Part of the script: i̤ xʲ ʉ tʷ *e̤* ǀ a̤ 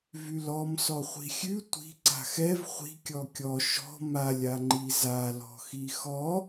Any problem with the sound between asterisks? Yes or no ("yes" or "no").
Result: yes